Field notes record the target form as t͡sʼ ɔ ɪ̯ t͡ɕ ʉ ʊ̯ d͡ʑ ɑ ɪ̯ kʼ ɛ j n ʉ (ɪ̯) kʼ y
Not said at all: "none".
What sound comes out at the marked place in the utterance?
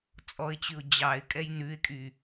ɪ̯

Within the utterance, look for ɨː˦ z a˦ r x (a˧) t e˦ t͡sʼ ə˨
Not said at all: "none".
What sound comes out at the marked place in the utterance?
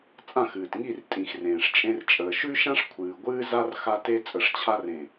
a˦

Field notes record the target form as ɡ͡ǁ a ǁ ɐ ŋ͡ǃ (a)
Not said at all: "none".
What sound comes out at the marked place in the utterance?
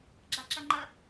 ɐ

